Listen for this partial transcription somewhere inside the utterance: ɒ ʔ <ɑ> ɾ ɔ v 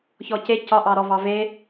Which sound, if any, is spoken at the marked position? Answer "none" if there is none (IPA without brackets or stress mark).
ɑ